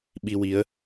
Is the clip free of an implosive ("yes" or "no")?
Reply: no